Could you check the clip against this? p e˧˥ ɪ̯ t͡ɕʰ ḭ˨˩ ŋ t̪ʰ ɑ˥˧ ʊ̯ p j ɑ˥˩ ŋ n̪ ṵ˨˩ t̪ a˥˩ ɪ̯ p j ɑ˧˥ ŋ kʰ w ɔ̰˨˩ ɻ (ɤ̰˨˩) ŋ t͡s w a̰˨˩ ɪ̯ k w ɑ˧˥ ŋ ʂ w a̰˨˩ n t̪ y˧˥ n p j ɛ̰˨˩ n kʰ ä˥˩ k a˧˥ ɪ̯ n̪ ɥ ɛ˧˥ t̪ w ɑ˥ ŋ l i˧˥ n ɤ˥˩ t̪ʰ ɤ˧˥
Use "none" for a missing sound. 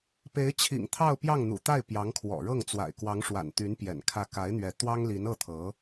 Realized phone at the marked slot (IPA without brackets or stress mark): ɤ˥˩